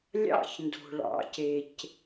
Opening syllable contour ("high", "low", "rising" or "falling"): high